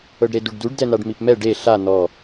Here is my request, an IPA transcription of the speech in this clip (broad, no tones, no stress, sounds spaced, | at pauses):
ɤ ɖ ɾ e d u ɖ d u ɖ d ɛ n̪ a ɖ m i p m ɛ ɖ e ɬ a n̪ ɔ